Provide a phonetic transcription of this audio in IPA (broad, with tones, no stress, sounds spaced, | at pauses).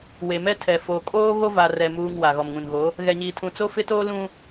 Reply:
w e˨ m ɛ˦ tʰ ɛ˨ f o˨ kʼ oː˦ ɣ o˦ v a˨ r ɛ˨ m uː˨ ŋ w a˨ ɣ ɔ˨ m ŋ ũ˨ n ɣ o˨˦ | ɣ ɛ˨ ɲ iː˨ tʰ ũ˨ t͡s o˦ f ɪ˦ t oː˦ l ũ˦